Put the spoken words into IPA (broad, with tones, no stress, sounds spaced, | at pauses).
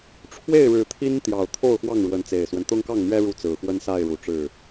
ʈ͡ʂʰ w e˥˨ ɪ̯ ɻ ɻ̩˨˦ t̪ʰ i˦ n t̪ j ɑ˨˩ ʊ̯ t̪ʰ o˥˨ ʊ̯ x w ɑ˥˨ ŋ ɻ w ə˨˦ n t͡s e˨˩ ɪ̯ s w ə˦ n t̪ ʊ˦ ŋ k ɑ˥˨ ŋ n̪ ɥ ɛ˦ ɻ u˥˨ t͡s ɹ̩˨˩ x w ə˦ n s a˥˨ ɪ̯ ɻ u˨˦ ʈ͡ʂ ɻ̩˥˨